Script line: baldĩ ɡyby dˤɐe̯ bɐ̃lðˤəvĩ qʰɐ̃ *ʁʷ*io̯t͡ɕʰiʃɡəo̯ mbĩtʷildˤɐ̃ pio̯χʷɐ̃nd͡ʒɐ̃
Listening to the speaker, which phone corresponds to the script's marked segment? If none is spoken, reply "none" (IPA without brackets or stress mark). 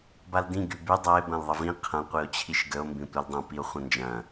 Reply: qʷ